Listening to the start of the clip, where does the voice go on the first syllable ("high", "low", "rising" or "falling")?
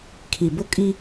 low